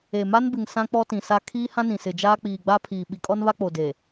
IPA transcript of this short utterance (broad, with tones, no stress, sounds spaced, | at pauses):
e˨ m a˦ n b ɪ˨ ŋ s ã˦ k͡p ɔ˦ t ĩ˨ s a˦ kʰ iː˦ h ã˦ n ĩ˨ s ɪ˨ d͡ʒ aː˦ k͡p iː˨ ɡ͡b a˦ pʰ iː˨ ɓ i˨ kʼ ɔ˦ n β a˦ k͡p o˨ d e˨